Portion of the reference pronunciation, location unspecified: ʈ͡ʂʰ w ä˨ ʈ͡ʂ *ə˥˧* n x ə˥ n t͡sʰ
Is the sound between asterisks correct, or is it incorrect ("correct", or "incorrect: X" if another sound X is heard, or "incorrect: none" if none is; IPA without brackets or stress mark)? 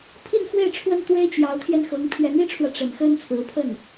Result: incorrect: ə˨˩